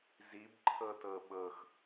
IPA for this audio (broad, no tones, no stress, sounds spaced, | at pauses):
z i b ǃʰ ɤ t ɤ ɓ ɤ x